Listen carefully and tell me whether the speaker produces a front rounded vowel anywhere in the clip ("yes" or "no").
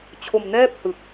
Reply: no